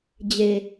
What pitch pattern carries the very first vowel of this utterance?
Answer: low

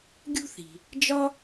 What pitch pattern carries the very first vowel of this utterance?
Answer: high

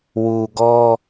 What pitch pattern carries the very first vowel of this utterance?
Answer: low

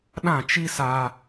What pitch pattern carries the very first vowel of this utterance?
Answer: falling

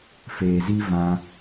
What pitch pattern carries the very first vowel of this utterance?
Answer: low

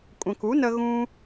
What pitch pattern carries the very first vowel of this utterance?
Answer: low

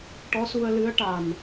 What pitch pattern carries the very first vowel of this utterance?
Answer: rising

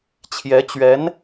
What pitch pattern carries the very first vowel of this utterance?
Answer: rising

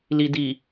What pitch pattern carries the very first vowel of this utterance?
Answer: low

